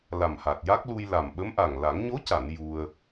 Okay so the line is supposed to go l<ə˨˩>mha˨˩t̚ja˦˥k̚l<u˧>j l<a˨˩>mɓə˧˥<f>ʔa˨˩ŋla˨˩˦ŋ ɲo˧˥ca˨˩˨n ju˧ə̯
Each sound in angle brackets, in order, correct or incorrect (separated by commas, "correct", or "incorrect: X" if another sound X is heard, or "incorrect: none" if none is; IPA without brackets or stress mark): incorrect: a˨˩, correct, correct, incorrect: m